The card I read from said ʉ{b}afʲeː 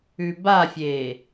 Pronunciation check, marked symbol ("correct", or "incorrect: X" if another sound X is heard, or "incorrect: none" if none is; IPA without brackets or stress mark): correct